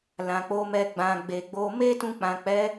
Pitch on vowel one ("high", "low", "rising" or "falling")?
low